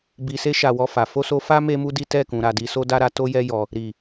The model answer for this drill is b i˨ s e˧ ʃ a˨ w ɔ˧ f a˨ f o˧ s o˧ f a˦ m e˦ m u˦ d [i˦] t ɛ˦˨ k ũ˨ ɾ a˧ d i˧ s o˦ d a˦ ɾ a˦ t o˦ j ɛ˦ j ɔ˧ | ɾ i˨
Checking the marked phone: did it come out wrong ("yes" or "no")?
no